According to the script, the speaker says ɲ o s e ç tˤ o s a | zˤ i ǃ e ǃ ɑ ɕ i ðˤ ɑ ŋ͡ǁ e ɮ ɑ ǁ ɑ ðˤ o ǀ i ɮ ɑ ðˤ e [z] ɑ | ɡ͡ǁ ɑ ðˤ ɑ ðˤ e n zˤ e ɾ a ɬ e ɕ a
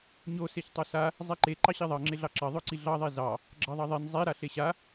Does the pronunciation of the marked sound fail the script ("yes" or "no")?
no